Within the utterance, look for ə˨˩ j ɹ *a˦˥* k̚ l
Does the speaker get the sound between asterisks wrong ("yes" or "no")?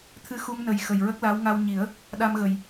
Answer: yes